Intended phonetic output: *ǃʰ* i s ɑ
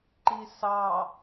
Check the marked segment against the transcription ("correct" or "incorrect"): incorrect